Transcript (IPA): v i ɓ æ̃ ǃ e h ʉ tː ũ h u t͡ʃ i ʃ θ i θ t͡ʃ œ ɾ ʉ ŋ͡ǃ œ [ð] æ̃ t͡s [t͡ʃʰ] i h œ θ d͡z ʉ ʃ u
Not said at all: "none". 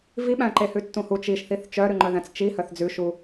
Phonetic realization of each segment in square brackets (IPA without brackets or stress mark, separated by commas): ð, t͡ʃ